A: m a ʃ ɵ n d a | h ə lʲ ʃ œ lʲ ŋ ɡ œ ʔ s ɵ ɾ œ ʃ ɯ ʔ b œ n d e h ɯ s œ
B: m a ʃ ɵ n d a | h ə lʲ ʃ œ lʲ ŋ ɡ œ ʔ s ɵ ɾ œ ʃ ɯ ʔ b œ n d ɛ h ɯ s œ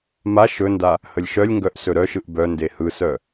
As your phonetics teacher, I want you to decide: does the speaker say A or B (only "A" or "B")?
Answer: A